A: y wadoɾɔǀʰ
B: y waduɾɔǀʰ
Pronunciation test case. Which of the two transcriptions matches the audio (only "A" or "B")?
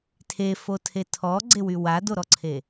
A